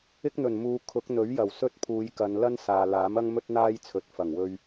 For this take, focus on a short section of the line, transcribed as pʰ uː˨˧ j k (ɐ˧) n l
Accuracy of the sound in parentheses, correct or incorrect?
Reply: incorrect